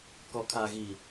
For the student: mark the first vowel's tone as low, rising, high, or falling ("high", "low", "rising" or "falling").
low